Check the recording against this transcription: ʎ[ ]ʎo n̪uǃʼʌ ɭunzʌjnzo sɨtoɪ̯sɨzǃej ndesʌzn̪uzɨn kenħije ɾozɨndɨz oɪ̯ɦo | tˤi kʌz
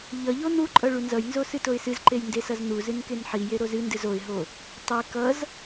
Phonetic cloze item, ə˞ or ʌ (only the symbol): ʌ